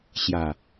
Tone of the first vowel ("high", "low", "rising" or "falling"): low